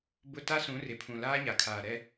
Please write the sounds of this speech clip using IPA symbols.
b ʊ˦ t a˦ s ũ˨˦ r ɪ˨ pʰ ũ˨ l aː˦ ɲ a˨ kʰ aː˨ ɾ ɛ˦

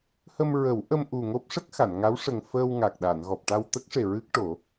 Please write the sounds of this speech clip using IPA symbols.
h ə˧ m ɹ ə˨˩˦ w ʔ ə˧ m ʔ u˨˩ ŋ o˦˥ p̚ ʂ ə˦˥ k̚ x a˨˩˨ n ŋ a˧˥ w ʂ ə˨˩ ŋ f əː˧ w ŋ a˨˩ k̚ ɗ a˨˩˨ n ɣ ɔ˨˩ p̚ ʈ a˧ w t̪ ə˦˥ k̚ ʂ e˨˩ ɹ ɨ˦˥ k̚ ʈ o˨˩˦

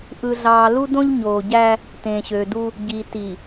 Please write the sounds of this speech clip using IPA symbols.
ʔ ɯ˨ ɮ ɑː˨ l u˦ d õ˦ ʎ ɲ oː˨ ɟ æ˦ | t ẽː˨ ɕ øː˨ d u˦ | ɟ i˨ t i˨

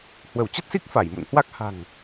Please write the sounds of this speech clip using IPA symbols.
h w ə˧˩ w t͡ɕ ə˦˥ t̚ s i˦˥ k̚ f a˧˩ j m ṵ˧˨ n h w a˦˥ k̚ h a̤˨˩ ŋ

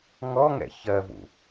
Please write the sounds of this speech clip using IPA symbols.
ŋ ɔ ŋ ɛ̰ ç ɜ v ṵ

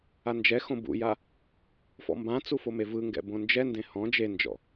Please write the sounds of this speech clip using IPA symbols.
a n d͡ʒ ɛ x õ b ṵ j a | f ɔ̰ m b ã t͡s u f o m e v ɯ ŋ ɡ ɛ̰ b õ n d͡ʒ ɛ n d ẽ h ɔ̃ d͡ʒ e n d͡ʒ ɔ̰

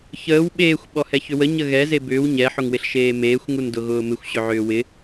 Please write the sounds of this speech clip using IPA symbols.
ç əː w ɓ eː xʷ ɓ ɔ h ɛ ç ʏ w ə ɲ ə ɣ ɛ z e b ʏː w ɲ ɛ ħ ʊ ŋ w ɪ ɬ ʃ eː m eː xʷ ŋ u n d ʊ ɣ ʊː m ɪ xʷ ɕ ʏ ʕ ʏː w ɪ

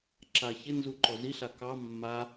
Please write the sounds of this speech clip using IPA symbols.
ǁ a ç ɪ n z u ǃ ɔ z i ɬ a k ɑ mː a

